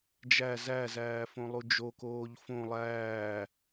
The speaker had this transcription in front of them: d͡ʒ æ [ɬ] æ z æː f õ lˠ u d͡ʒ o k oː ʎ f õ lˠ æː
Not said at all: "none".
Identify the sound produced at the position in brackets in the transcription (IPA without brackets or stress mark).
z